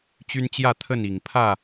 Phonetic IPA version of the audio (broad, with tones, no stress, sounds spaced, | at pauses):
t͡ɕ y˦ n t͡ɕ j ä˥˨ t̪ʰ ə˥˨ n i˨˩ ŋ pʰ ä˥˨